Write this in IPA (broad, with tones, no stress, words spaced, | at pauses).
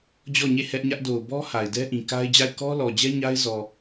d͡ʑɔ˦˨ɲe˦˨ hɛ˦ʔɲä˦ʔ do˨ʊ̯bɔ˦ ha˨ɪ̯ dɛ˦ʔĩ˨ ka˦ɪ̯d͡ʑa˦˨ɪ̯ kɔ˦lɔ˨d͡ʑɛ˦ ɲa˦ɪ̯zɔ˨